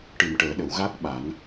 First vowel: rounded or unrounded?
unrounded